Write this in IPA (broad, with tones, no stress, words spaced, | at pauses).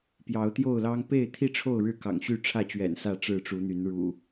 pjɑ˨˦ʊ̯t̪jo˥˨ʊ̯lɑ˦ŋ pe˥˨ɪ̯t̪ʰi˥˨ʈ͡ʂʰo˥˨ʊ̯ ɻɻ̩˥˨ kɑ̰˨˩ŋɕy˥˨ʈ͡ʂʰä˥˨t͡ɕɥɛ̰˨˩n sä˥˨ ʈ͡ʂɻ̩˥˨ʈ͡ʂu˨˦n̪y˨˦n ɻṵ˨˩